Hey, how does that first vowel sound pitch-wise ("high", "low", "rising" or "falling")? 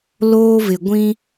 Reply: high